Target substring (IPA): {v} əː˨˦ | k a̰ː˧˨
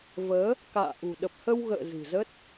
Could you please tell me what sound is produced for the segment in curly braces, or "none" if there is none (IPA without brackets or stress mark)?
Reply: v